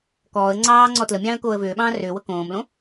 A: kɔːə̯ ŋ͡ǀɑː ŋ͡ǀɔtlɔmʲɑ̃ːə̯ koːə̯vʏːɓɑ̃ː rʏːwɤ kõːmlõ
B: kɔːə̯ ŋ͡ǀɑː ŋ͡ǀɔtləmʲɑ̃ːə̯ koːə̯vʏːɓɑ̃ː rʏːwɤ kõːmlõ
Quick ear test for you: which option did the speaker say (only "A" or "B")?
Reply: B